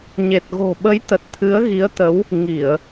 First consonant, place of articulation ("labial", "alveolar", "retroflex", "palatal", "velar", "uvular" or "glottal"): palatal